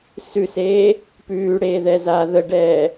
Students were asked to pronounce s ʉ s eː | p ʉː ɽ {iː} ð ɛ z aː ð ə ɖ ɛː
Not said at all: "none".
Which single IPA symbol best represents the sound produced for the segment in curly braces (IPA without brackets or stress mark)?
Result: eː